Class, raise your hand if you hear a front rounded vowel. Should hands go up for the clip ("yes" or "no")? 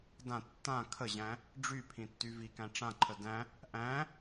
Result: yes